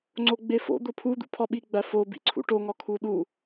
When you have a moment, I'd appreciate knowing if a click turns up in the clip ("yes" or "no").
yes